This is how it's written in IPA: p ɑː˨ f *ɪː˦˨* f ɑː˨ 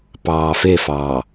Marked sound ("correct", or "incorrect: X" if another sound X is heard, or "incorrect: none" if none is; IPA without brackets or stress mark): correct